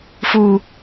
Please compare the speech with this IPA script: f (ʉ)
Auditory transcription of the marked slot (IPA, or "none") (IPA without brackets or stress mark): u